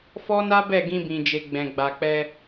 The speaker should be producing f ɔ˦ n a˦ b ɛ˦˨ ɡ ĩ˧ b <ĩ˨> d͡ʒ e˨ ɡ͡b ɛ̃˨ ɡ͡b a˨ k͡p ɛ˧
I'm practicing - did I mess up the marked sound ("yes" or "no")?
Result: no